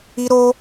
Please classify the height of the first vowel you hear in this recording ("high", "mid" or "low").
high